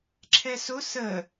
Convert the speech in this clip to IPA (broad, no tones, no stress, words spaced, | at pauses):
ǁʰɛsʊ sə